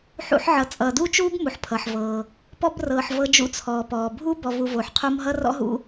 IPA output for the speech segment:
ħ ṵ˦ ħ ʕ ʌ˨ t͡sʼ ʌː˨ d uː˥ t͡ʃ uː˥ b m u˨ ħ pʰ ʌ˩ ħ v ɤː˩ | p ɔ˥ b r ɤː˨ ħ v ɤ˦ d͡ʒ ṵ˦ t͡sʰ ɔː˩ p ɔː˩ bʱ uː˥ b ɔ˨ v u˨ v oː˩ ħ qʰ o˦ m ɦ ʌ˥ r ɔ̰˥ ɦ ṵ˦

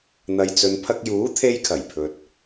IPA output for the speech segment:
n̪ ɐ˨ j t͡s ɵ˨ n pʰ ɐ˧ k̚ j uː˨˥ t̪ʰ e˧ j kʰ ɐ˨˩ j pʰ ɵ˧ t̚

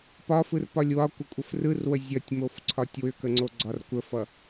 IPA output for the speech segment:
p ɒ f ɯ r p ɒ lʲ w ɒ kʷ ə kʷʼ ə f r ɯ r w ə zʲ ʌ tʲ m o f ǀʰ ɒ tʲ w ʏ k ə ŋ͡ǀ o ɡ͡ǀ ɒ r kʷ ə f ʌ

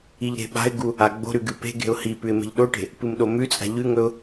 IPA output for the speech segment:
i ʎ ɾ e̤ ɓ a̤ ɪ̯ ɡ u | a ɡ͡b o̤ ɾ ʉ ɡ ɨ p e̤ ɡ e̤ ʊ̯ h i p ʉ ɪ̯ m e̤ ʎ ɗ o ʈ e̤ | p ɨ m ɗ o m ʉ t͡sʼ a̤ ʎ ʉ ŋ ɵ ʊ̯

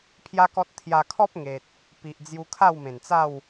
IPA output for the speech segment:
pʰ j a˦ k ɔ˦ t̚ t̪ʰ j a˧ kʰ ɔ˦ p̚ ŋ e˨ t̚ | p i˨ ʔ d͡z j u˧ kʰ a˥˧ w m ẽ˨˩ n t͡s a˥˧ w

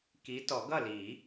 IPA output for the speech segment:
k i˨˦ t ɔ˨˩˦ ɡ ʌ˥˨ l i˨˩˦

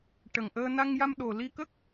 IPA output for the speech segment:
ʈ ə˨˩ ŋ ʔ əː˧ n a˧ ŋ j a˧ m ɗ o˨˩ l i˧ k ə˦˥ k̚

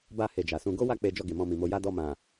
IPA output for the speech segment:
b a˧ h e˧ d͡ʒ a˨ s ũ˧ ɡ o˦ w a˦˨ k͡p e˧ d͡ʒ ɔ˧ ɡ e˨ m ɔ̃˧ m ĩ˨ m o˧ j a˦ d ɔ˧ m ã˨

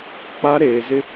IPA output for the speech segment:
k͡p a˦ ɾ eː˨ z ɪ˦

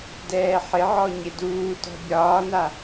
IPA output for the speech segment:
d ɛː ħ ɪ ʕ ɔ ɲ ɪ d uː t ɔ̤ bʲ ɒː n a

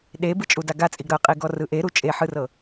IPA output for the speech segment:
ɗ e b ɯ t͡ʃʼ u d a ɡ a t͡sʼ i ɡ ɾ ɤ qʼ i ɡ ɔ r ɯ ʔ e ɾ u t͡ʃʼ e ħ ɯ r ɤ

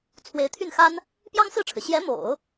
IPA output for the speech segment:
t͡sʰ w e˧˥ ɪ̯ t̪ʰ y˥˩ n x a˥ n | p j ɑ˥ ŋ s ɹ̩˥˩ ʈ͡ʂʰ ɻ̩˩ ɕ j ɛ˧˥ m o̰˨˩˦ ʊ̯

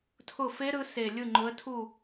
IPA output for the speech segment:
tʰ ʊ˦˨ f e˦˥ ɾ ɯ˨˦ s e˨˩ lʲ ɯ˦˨ ŋ͡ǃ ʊ˨˦ ə̯ tʰ u˦˨

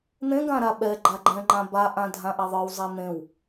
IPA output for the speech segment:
n̪ ẽ ɡ ã ɾ a ɓ ɛ ɡ͡ǃ a ɡ͡ǃ ɛ̃ ŋ͡ǃ ã b a ʔ ã dʱ ã ʔ ɛ ðˤ ə˞ w zˤ ɛ n̪ ẽ w

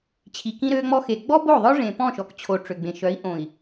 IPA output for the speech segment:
t͡ɕʰ i˨ k ĩ˦ ɾ øː˦ ŋ͡m ɔ˦ x e˨ ɡ͡b ɔ˦ b o˦˨ ðˤ œ˦ ʐ ẽ˨ p ɔ̃˦˨ ʃ ɔ˨ k t͡ɕʰ o˨ ʈ͡ʂ ø˨ ɡ͡b ẽ˨ ʃ œ˨˦ i̯ ʔ õ˨ i̯

